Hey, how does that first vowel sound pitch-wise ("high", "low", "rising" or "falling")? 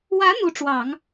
rising